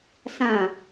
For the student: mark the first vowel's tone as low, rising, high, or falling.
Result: low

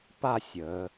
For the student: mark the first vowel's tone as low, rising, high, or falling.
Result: falling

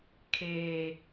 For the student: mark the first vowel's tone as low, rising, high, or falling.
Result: high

